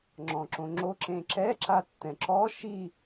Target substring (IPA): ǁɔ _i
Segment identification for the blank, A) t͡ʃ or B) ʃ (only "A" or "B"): B